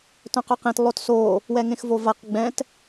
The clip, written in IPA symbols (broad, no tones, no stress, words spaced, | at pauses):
tœ̃qœqẽt lˠotso | wɛŋẽxvovaq ɡ͡bɛ̃t